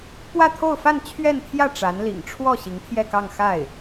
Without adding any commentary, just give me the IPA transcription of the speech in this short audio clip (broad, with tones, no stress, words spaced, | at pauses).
pwä˥˧t̪ʰo˥˧ʊ̯fa˥˧n t͡ɕʰɥɛ˥˧nt̪ʰjä˥˩ ʈ͡ʂa˧˥nlḭ˨˩ŋ ʈ͡ʂʰwɔ˥˩ ɕi˧˥ŋt̪ʰjɛ˥˧kɑ˥˧ŋ xa˥˩ɪ̯